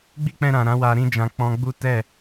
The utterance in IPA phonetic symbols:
ɡ͡bi˦k͡pɛ̃˧ɾã˨ ɾã˨˦wa˧ ɾĩ˧d͡ʒã˨ k͡pɔ̃˧ ɡ͡bu˦ tɛ˦˨

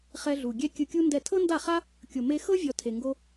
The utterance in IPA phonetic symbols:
χɛ˧ɮu˨ ɡʲɛ˦ kʲɯ˧kʲu˦ndɛ˦˨ tʰɤ˦nda˦˨χa˦ | kʲo˨me˧xɤ˦ vʲɔ˧tʰe˨ŋɡo˦

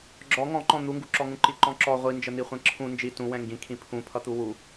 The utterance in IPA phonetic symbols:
ɡ͡ǁɔ ŋɔ̃ǃɔ̃ n̪uŋɡuǁɔŋũ ǃiǃɔ̃ǁɔ ʁʷi nd͡ʒən̪iχʷɛ̃ǁʰũ nd͡ʒi tũ wɛ̃ŋɡĩkʰĩ pʰũ pʰʌt̪uwu

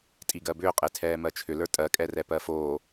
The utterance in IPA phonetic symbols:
tʼiɡɜbʏːqʼe tʰɛːmɜt͡ʃʰʏlə˞ tʼɜkʼɛrɛ pɜfoː

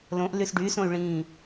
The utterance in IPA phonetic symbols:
lõʔ lysɖy sõy̯ɭĩː

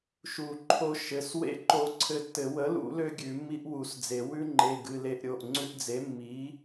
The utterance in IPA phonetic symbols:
ʃu˨˩˦ ǃʰo˧ ʃɘ˩˧˩swḛ˦˥ ǃo˧ǀʰɘ˧tːɘ˨˩˦ wə˩˥lṵ˨˩˦lø˧ ɡʲʉ˨˩˦mːi˦˥ʔwu˨˩˦sd͡ze˨˩˦ wʉ˦˥ŋ͡ǃe˩˧˩ ɡɨ˩˧˩le˧˩ʔɾʲo˩˧˩ʔ ŋ͡ǀʉ˧ʔd͡ze˩˥mːi˩˥

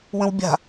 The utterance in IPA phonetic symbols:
wə̃wbʲa̤

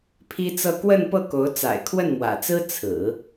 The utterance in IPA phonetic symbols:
pʰi˥t͡sɤ˥˧ kwə˥˧npɤ˥˩ko˧˥ʊ̯ t͡sa̰˨˩ɪ̯kʰwə˥˩nmwä̰˨˩t͡sɹ̩˥ t͡sʰɹ̩˨˩˦

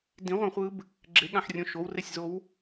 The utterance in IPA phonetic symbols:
dĩʁʷɛ̃χʷɯb | ɡ͡ǁeɠãħrʲõ ʃowresʲzow

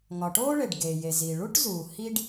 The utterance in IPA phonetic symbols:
ŋɒ˩ʈoː˥ɭe˩ɖ ɡe˩je˩zi˩ ɭu˥ʈzuː˩ hi˥ɖ

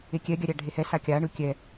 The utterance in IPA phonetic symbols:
ekʲɛɡʲaɾʲa ɖʱehɛ sakʲaɳɯ kʲɛ

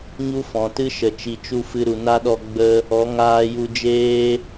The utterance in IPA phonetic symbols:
ɲu˦fɔ̃˨tɨ˦ʃə˨ t͡ʃi˨t͡ʃu˦˨fɨ˧ ɾu˨na˦ɗɔ˧ ɡ͡bə˦ | ɔ˨˦ŋaː˧ju˧d͡ʒeː˦

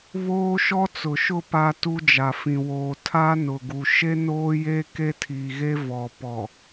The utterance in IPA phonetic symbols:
βoː˦ʃɔ˦ t͡sʊ˨ʃʊ˦˨ pa˦ tu˦d͡ʒa˨fĩ˨ woː˨ tʰa˦nʊ˨ɡu˨ ʃe˦noː˦je˦ ke˦tʰi˨ɣe˦ vɔ˨pɔ˨

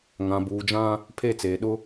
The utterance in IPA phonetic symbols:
ŋã˨buː˨d͡ʒã˦ | pʰe˦˨t͡seː˨ ɗʊ˦

